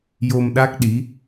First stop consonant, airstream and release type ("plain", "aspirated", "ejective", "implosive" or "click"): implosive